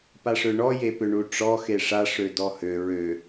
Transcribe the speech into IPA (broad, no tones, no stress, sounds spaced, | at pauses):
p a ʂ ø ɳ ɔ j e p ʏ ɳ u ʈ͡ʂ ɔ x e ʂ a ʂ ø d ɔ h ø ɹ ø